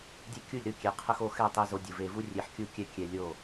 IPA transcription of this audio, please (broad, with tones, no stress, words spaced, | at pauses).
dʲe˦kʲu˦˨lʲɾɯ˦ kʲe˨˦qʰə˦xo˦ xɛ˦˨tˤe˦ zo˧dʲɯ˨ve˧ vu˦rʲe˧ħ kʲu˦kʲɛ˦ kʲɛ˧lʲo˦˨